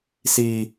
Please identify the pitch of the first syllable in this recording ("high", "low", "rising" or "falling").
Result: high